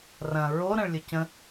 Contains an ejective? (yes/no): no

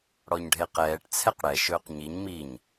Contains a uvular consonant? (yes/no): yes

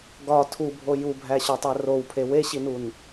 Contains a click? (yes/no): no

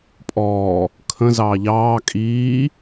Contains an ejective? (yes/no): yes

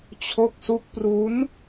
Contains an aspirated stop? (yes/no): yes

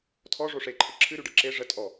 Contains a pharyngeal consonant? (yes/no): no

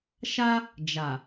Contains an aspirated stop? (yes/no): no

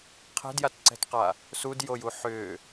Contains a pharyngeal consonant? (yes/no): yes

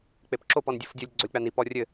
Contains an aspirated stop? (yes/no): no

